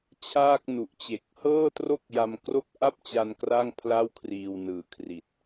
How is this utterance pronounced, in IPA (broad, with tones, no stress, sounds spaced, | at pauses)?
t͡ɕʰ aː˥˩ k̚ n u˨˩ ʔ t͡ɕ e˨˩ k̚ h ɤː˥˩ t r o˥˩ k̚ j a˧ m k r o˥˩ k̚ ʔ a˥˩ p̚ t͡ɕ a˧ n k r a˥˩ ŋ pʰ l a˥˩ w kʰ r iː˧ w n ɯː˨˩ kʰ r i˨˩ t̚